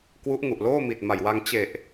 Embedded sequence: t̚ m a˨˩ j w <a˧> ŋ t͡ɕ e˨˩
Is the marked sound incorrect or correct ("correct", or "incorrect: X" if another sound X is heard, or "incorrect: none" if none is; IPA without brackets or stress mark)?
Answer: correct